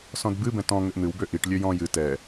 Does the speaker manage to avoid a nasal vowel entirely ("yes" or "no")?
no